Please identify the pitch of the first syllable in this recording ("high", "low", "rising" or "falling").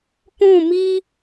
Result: falling